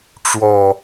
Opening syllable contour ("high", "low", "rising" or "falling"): low